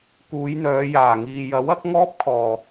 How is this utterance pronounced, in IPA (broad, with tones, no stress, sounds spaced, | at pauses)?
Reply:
k uː˨˧ j n̪ œː˨˧ j aː˨˩ ŋ iː˨ j ɐ˨˥ w ɐ˨˥ k̚ ŋ ɔː˥ p̚ kʰ ɔː˨